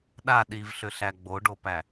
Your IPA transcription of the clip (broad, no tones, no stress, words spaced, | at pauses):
ɗa ɗivɬʏɬæ ɡ͡boɖopæ